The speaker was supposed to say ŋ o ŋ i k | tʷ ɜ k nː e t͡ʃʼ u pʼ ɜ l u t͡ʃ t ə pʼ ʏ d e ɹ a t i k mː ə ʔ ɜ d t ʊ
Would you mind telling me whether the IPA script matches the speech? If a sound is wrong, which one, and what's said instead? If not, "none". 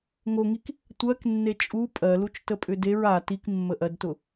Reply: none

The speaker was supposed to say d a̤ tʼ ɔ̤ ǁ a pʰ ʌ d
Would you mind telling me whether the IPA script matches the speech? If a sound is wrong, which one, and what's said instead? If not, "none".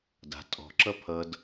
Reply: a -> ʌ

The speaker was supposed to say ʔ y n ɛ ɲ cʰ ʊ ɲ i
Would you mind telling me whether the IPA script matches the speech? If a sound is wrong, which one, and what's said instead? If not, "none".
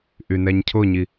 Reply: none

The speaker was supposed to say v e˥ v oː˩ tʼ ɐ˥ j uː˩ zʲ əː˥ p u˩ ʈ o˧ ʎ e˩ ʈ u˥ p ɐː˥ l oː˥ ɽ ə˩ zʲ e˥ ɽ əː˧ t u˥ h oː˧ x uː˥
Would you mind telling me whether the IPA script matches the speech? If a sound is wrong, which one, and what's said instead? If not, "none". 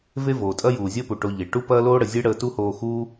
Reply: none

